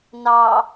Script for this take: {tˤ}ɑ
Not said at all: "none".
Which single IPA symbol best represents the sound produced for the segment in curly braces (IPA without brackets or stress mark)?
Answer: n